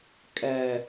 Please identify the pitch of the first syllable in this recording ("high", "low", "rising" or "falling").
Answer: low